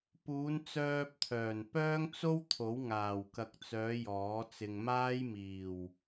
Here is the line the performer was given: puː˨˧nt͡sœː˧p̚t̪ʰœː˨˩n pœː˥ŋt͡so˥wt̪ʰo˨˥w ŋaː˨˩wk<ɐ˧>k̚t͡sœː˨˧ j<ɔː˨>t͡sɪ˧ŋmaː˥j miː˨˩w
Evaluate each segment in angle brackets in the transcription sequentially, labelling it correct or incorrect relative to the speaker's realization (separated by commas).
incorrect, incorrect